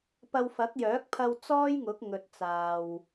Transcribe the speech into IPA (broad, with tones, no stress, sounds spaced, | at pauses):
p ɐ˧ w f ɐ˨˥ k̚ j œː˨˥ k̚ pʰ ɐ˧ w t͡s ɔː˥ j ŋ ʊ˨˥ k̚ ŋ ɵ˨ t̚ t͡s aː˨ w